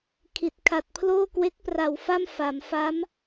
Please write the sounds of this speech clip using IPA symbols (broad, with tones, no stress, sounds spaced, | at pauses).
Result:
kʰ i˨˩ t̚ kʰ a˨˩ t̚ pʰ l oː˥˩ k w e˦˥ k̚ p r a˨˩ w f a˥˩ m f a˩˦ m f a˦˥ m